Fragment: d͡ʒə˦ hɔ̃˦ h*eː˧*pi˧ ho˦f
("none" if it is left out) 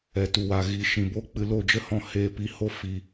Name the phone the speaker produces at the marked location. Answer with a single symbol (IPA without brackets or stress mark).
eː˧